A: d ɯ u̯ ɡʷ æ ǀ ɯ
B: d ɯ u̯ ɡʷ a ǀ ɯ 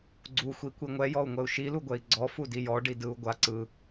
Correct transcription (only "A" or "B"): B